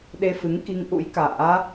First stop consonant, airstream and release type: implosive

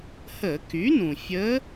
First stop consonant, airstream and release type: plain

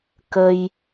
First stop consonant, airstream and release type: plain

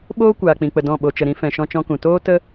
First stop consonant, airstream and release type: implosive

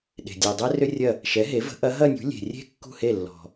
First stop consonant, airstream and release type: implosive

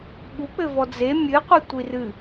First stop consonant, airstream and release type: implosive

